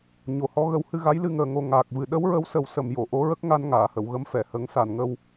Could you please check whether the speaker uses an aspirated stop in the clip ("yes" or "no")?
no